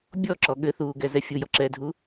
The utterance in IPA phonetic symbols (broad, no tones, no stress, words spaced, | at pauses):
bʲɔǁɔ ɠɘθuːɡɛzɛ fʲujɔǁɛːdʱu